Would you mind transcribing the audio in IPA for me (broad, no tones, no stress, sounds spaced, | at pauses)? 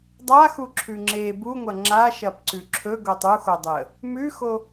dˤ a x u ǁʰ ʉ ŋ͡ǁ e b u ŋʷ ɐ ŋ͡ǁ a ʃ ɐ p ǀ ʉ ǁʰ ɵ ɡ o tˤ u x o dˤ e ə̯ | m ʉ x o